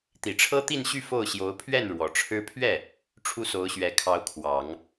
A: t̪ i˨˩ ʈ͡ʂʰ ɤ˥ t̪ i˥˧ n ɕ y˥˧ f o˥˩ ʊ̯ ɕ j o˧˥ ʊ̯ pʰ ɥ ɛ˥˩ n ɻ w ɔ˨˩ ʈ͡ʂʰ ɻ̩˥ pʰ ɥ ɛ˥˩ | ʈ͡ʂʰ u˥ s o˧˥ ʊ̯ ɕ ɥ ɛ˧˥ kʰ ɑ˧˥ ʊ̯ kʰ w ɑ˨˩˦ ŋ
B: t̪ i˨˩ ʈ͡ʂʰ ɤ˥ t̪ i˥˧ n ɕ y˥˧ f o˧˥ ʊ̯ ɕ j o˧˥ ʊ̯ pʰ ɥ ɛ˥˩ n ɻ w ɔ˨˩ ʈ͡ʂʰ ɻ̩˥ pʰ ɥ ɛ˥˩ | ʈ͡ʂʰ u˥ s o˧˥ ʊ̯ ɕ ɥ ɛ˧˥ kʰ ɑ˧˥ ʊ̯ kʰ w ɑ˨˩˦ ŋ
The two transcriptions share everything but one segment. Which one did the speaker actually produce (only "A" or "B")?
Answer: A